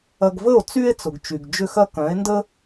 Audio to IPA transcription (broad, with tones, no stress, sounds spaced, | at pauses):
ɐ˧ ɡ v ə˥˩ o̯ t͡s y˥ e̯ t͡s ʊ˩ ɡ t͡ʃ y˩ ɡ d͡ʒ ʏ˥˩ x ɐ˥ k œ̃˩˥ e̯ n d ə˥